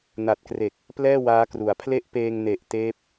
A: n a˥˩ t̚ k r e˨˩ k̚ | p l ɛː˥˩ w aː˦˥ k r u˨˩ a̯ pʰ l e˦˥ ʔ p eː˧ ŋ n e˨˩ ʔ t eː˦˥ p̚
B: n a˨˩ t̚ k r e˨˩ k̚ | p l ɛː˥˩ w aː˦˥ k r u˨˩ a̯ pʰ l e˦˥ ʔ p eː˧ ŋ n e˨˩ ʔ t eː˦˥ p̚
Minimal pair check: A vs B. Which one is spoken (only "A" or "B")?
B